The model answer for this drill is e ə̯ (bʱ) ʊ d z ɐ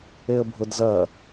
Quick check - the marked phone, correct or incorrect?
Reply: correct